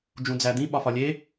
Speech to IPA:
d͡ʒ ũ d͡z æ d̪ ĩ ɓ ɒ f ɒ lʲ e

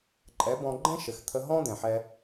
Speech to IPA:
ǃʼ ɛ˨˦ b ɔ̃˧ ɡ͡ǃ ɛ̃˦ ʃ ɘ˨ x t̪ʰ ə˧ ɦ ɔ̃˦ d̪ ɛ̃˨ ħ ɛ˧

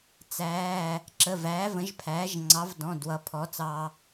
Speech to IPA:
t͡s æː˩˧˩ | ǁ ə˩˧˩ v æː˩˥ v ə̃˩˥ ʒ pʰ æː˩˥ ʒ ŋ͡ǀ ɑ˩˥ v d ɔ̃˩˧˩ d w ʌ˩˥ pʰ ɔ˩˥ t͡s ɑː˧

